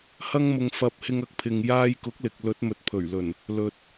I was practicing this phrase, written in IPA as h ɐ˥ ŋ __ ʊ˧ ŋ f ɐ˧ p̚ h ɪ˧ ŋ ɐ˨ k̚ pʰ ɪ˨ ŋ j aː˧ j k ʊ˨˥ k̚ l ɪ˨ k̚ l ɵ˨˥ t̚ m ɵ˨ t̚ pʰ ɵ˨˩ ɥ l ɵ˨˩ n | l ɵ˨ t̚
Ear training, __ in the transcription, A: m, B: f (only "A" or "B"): A